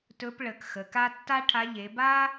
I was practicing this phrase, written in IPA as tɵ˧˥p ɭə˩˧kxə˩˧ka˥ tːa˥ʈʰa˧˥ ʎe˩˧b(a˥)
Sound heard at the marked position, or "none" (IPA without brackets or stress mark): a˥